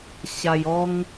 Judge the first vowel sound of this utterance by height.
low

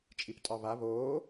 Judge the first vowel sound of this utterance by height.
high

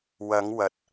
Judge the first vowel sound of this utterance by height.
low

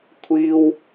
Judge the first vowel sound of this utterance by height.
high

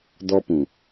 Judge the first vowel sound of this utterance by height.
mid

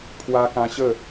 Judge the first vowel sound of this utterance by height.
low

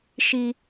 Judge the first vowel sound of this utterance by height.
high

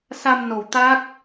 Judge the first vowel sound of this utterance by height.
low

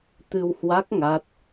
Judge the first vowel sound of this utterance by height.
high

